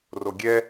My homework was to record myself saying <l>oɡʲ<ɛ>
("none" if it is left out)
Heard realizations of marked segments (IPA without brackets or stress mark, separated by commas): r, ɛ